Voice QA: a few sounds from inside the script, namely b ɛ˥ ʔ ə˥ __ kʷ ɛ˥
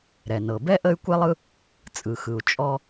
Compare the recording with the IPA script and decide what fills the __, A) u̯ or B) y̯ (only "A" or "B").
B